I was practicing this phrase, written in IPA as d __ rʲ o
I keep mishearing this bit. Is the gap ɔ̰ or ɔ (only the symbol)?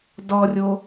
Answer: ɔ